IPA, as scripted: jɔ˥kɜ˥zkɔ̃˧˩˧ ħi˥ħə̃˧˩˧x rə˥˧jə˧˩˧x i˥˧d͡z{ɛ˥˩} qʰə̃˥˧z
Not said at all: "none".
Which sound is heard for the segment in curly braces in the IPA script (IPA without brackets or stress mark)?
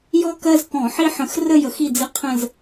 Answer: ɪ˥˩